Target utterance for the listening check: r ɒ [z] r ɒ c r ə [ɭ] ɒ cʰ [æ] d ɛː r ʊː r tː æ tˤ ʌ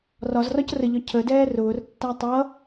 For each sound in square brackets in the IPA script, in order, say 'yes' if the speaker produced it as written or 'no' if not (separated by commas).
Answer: yes, no, no